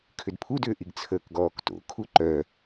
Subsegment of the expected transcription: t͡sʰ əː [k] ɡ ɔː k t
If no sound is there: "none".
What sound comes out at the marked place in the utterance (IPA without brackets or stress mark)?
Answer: k